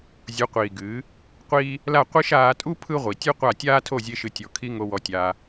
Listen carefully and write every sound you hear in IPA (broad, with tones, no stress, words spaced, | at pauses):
zʲu˨˦qʷiː˨ɡɨː˨˦ | qʷiː˦ | la˦˨ qʷi˦ʃ aː˧tʼu˦ pʰɯ˦ʁʷi˨tʲɨ˦qʷa˦˨ tʲaː˦tʰo˦˨zʲe˧ʃɨ˨ tʲɔ˨kʰi˧ ŋo˧wɔ˧tʲaː˧